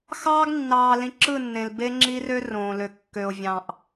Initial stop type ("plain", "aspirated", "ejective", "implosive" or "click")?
plain